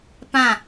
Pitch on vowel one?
falling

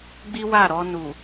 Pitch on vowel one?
high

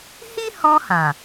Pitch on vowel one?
high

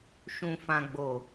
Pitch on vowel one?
low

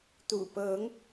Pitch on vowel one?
low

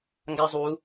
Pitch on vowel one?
high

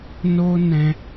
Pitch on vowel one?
high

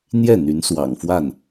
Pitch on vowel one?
falling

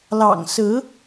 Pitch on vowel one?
low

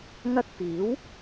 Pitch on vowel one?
high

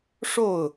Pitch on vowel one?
falling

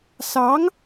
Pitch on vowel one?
rising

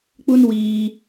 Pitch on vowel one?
high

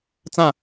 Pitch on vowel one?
falling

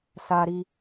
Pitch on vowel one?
high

